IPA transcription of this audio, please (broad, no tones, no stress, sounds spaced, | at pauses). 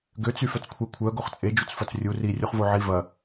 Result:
ɡ ø t͡s y f œ t͡s kʷʰ ɛ kʷʰ œ ɡ o χ t͡sʼ e d͡ʒ u t͡s f ɐ t͡s rʲ u r i rʲ u χ v o ʕ i v ɐ